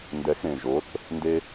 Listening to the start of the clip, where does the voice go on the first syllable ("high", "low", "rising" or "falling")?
rising